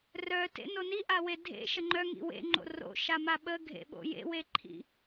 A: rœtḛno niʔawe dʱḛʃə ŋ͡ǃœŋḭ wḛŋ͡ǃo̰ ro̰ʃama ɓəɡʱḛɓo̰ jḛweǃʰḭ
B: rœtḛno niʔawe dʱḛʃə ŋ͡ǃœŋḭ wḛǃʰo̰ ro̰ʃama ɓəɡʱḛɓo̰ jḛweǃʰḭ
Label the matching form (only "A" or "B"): A